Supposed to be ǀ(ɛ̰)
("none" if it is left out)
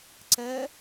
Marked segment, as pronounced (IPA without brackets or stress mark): ɛ